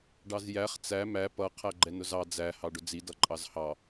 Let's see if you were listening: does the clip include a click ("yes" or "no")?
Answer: yes